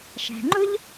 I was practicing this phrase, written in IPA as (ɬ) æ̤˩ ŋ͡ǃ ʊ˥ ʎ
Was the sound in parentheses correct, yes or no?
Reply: no